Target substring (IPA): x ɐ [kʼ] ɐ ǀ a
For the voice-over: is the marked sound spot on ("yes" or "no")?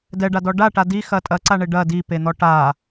no